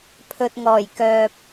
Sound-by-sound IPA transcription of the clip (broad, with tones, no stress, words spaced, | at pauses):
pʰɵ˨t̚ŋɔː˨˩j kœː˨p̚